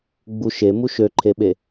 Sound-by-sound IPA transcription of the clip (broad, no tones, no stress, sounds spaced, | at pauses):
ɡ͡b u ʃ e m u ʃ ø ǃʰ e ɓ e